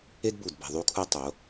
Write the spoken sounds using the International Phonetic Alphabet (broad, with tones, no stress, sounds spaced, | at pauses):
e˦ d b u˨ d b e̤˨ ðˤ u˦ kʰ u˦ tˤ o˨˦